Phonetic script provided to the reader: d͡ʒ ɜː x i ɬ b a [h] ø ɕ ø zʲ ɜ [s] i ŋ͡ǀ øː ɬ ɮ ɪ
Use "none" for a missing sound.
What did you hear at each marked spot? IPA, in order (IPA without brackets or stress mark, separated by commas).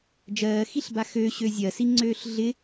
x, s